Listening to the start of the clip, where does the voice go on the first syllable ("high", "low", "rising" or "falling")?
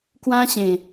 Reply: high